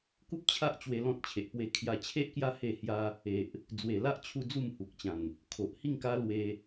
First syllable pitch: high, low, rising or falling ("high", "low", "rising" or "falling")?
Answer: high